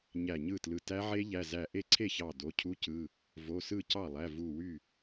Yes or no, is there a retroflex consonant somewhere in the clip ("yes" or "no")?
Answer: no